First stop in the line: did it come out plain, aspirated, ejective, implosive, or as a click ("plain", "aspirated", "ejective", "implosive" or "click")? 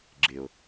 click